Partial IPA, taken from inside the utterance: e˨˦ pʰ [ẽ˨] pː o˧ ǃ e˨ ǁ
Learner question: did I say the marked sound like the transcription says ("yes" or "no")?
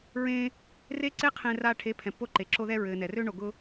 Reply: no